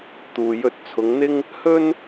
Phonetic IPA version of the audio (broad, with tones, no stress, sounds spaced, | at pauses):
t̪ uː˨ j ɵ˧ t̚ t͡sʰ ʊ˨˧ ŋ n̪ ɪ˥ ŋ | h ɵ˥ n